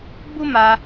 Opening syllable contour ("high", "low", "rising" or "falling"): high